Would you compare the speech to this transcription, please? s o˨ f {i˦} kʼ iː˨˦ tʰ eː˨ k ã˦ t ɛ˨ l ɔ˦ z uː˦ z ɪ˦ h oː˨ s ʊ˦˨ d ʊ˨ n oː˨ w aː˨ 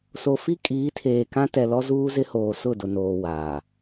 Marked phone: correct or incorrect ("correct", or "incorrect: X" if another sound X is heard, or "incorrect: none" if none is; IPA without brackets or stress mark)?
correct